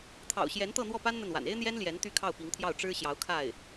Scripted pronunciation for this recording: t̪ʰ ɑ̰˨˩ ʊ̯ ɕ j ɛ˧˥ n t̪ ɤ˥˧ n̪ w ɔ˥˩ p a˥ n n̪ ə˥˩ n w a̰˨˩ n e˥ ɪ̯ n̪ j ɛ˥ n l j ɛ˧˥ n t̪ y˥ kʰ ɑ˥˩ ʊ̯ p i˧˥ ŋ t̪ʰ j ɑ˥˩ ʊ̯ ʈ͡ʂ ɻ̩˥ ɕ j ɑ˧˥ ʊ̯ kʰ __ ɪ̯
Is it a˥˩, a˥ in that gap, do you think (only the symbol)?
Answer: a˥˩